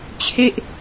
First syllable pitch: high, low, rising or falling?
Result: falling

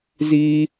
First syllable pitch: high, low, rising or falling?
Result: high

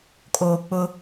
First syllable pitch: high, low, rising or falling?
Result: low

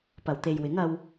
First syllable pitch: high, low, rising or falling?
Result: low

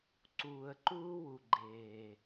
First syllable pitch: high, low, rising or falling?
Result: low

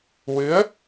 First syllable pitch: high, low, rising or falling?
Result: rising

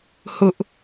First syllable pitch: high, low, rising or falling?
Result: high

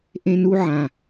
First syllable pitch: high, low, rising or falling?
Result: high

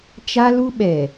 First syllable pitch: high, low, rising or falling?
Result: high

